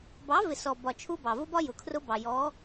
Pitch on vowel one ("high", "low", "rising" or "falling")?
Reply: rising